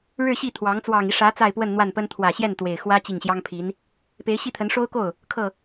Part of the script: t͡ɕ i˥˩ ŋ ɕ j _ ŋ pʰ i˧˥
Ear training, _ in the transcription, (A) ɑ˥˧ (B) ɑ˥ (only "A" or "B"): B